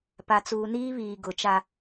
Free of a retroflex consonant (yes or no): yes